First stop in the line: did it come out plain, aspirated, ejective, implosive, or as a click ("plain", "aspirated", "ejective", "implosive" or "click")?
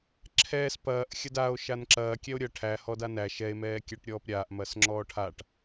click